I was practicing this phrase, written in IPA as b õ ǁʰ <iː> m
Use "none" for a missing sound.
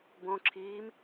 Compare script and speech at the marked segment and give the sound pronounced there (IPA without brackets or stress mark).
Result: iː